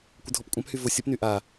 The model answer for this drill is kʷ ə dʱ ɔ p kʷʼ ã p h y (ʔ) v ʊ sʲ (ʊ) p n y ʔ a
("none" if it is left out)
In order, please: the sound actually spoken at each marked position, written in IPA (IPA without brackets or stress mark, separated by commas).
none, ə